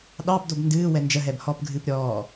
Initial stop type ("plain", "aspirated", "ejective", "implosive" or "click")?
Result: implosive